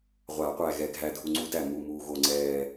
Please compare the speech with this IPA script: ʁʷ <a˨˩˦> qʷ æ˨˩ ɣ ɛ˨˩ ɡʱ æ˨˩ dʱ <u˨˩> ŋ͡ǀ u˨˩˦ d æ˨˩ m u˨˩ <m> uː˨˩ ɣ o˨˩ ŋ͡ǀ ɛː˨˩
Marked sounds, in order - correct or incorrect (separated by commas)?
correct, correct, correct